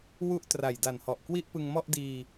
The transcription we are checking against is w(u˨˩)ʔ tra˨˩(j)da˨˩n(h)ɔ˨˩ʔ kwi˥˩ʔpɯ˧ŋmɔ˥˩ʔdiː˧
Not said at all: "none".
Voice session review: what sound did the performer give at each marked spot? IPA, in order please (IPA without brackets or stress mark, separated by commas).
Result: u˦˥, j, h